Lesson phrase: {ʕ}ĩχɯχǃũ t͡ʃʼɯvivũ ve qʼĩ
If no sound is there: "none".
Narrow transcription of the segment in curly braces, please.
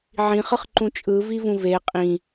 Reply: ʕ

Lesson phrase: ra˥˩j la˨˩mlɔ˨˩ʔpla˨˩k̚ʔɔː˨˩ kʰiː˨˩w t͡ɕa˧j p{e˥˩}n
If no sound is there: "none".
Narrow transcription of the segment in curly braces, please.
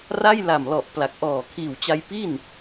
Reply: i˥˩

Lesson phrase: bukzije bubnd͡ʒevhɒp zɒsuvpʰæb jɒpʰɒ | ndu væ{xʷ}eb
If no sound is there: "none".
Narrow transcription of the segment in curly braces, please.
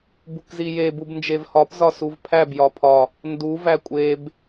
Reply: kʷʼ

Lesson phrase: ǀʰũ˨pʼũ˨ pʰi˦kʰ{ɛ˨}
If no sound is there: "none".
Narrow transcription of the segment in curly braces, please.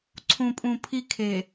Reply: e˨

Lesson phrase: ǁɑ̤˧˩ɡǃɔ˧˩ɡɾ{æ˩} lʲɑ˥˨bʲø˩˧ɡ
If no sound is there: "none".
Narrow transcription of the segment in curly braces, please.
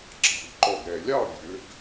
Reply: ɛ˩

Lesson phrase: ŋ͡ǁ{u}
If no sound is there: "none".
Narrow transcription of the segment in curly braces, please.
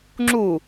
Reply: u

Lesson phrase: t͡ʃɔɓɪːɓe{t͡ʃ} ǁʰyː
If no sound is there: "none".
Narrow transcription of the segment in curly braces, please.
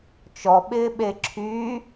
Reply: none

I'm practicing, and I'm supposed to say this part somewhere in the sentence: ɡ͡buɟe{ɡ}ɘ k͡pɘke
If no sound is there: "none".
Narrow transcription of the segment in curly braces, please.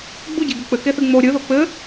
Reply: ɡ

